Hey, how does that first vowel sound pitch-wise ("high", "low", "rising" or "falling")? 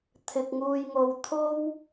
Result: low